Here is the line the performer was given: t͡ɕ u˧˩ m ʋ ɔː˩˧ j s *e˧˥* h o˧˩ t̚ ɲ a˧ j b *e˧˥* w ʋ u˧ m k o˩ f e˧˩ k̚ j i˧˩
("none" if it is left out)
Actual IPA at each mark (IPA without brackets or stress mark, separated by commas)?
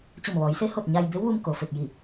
e˧˥, e˧˥